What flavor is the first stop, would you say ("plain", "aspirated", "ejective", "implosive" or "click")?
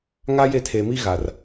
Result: aspirated